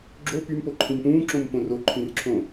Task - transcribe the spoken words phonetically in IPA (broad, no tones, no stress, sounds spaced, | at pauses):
ɡ͡ǁ o p y m p o ǃʰ ĩ m p ũː ǁ õ m p õ r o ǃʰ ĩ r ǁʰ õ